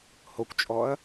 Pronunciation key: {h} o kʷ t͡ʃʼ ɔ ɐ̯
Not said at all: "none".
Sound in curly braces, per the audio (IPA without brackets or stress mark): h